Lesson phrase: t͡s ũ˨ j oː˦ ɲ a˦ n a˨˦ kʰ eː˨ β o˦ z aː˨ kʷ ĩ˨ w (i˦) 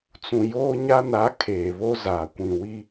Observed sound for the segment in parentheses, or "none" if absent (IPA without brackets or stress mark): i˦